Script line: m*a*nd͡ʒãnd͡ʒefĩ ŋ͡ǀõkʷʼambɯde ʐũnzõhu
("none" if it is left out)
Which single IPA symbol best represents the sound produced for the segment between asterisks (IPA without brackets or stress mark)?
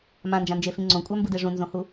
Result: ã